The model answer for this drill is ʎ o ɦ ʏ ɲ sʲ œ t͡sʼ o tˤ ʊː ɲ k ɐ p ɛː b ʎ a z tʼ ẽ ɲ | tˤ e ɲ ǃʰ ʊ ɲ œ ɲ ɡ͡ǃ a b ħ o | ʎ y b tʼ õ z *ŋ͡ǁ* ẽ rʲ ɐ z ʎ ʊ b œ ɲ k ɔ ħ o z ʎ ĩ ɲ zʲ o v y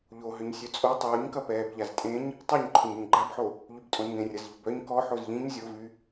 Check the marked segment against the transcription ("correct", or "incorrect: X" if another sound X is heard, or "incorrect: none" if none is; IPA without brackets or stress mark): incorrect: ŋ